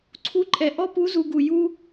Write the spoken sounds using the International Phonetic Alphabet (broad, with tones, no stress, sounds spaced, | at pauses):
ǀʰ u˧˥ ǃʼ ɛ˩ ʔ ɔ˥ p u˧˥ z u˩˧ ɡ u˩ j u˧